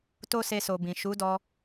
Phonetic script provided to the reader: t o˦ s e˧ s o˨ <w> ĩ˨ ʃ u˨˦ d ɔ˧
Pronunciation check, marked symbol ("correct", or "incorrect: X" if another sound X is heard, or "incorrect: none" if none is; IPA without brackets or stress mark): incorrect: b